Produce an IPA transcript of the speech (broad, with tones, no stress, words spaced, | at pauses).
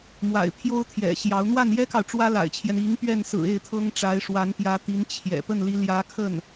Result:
mwa̰˨˩ɪ̯pʰjo˥ʊ̯t̪ʰjɛ̰˨˩ɕjɑ˧˥ʊ̯ n̪wa˥˩njɛ˥kɑ˨ʊ̯ ʈ͡ʂwä˥la̰˨˩ɪ̯t͡ɕʰjɛ˦n i˧˥ŋ pɥɛ˥˩nsɹ̩˨˩ e˥˩ɪ̯t̪ʰɤ˥ŋʈ͡ʂa˧˥ɪ̯ ʂwa˧˥npjä˧˥t̪i˧˥n t͡ɕʰjɛ̰˨˩ pə˥˩nli˧˥ljä˧˥kʰə˥˩n